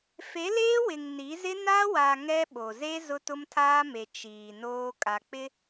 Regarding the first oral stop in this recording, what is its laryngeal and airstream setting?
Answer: implosive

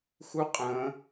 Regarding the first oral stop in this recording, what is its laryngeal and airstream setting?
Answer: ejective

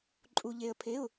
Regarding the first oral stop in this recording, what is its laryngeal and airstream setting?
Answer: click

